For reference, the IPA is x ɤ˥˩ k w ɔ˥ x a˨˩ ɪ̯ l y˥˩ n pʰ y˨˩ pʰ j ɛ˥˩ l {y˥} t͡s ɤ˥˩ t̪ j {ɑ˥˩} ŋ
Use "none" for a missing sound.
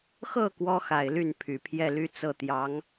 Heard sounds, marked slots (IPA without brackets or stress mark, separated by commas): y˥, ɑ˧˥